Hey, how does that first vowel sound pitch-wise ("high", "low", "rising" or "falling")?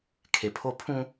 low